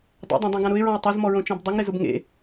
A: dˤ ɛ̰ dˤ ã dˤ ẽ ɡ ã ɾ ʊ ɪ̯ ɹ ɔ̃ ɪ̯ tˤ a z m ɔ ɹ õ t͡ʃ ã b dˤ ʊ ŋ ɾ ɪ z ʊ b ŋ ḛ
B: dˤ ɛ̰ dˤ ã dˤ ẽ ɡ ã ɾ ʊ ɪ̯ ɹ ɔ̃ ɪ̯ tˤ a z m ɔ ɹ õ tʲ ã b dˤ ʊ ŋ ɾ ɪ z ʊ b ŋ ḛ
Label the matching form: A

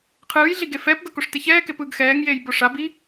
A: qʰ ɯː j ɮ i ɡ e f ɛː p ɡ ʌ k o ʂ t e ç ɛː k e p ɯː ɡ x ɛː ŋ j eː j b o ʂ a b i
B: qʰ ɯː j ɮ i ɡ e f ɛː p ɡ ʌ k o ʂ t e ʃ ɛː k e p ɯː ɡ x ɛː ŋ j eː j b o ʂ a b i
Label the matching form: A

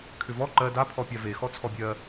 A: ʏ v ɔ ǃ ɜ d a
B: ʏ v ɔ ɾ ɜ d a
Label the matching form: A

